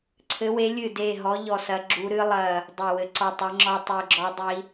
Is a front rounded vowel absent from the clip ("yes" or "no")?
yes